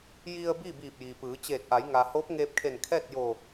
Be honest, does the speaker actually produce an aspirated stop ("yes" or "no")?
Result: yes